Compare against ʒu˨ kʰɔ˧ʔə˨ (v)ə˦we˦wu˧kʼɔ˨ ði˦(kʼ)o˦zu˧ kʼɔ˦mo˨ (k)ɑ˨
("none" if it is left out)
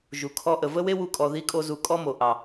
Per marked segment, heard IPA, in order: v, kʼ, ʔ

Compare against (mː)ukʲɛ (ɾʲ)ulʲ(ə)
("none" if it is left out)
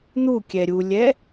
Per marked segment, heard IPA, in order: n̪, ɾʲ, ɛ

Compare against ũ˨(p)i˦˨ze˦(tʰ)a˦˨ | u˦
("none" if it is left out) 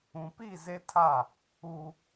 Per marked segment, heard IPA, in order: p, tʰ

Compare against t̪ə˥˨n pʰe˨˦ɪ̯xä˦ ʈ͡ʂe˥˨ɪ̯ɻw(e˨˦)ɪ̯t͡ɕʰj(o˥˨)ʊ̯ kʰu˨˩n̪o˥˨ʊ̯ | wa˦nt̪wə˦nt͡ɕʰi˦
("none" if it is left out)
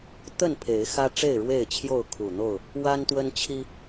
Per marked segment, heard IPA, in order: e˥˨, o˥˨

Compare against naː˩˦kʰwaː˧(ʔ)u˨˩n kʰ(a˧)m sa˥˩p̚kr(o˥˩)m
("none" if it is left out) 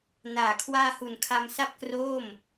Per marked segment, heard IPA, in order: h, a˧, oː˥˩

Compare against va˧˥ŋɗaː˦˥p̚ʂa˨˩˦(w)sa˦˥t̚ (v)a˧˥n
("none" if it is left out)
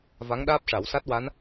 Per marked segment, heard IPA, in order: w, w

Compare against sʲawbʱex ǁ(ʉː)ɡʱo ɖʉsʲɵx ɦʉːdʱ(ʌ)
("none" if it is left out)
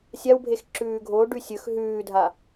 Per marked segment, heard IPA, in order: ʉː, a

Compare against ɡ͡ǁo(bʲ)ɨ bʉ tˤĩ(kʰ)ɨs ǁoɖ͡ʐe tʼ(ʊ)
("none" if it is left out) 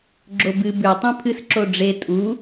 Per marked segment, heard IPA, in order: b, pʰ, u

